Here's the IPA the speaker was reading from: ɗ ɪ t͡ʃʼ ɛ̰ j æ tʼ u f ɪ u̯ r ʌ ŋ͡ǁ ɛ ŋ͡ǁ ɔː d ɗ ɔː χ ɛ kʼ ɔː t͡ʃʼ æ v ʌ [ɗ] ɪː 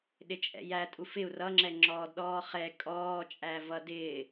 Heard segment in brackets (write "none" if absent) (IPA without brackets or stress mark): d